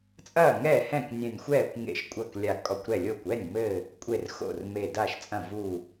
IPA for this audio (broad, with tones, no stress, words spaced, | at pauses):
t͡sʼɐː˥˩ŋɛ˥˩hɛ̃˥˩k nʲɛ̃˧˩nʲxʷɛː˥˩kʷŋḛ˧˩ʃ kʷʼɐ˥˩klʲa˧˩kʼɔ˧˩kʷɾɛ˥˩ lʲo˥˩kʷ ɛ˥˩nʲmɘ˧˩ | kʷʼe˥˩r xo̰˥˩r me˧˩da˥˩ʃt͡sʼɐ̃˥˩ vu˥˩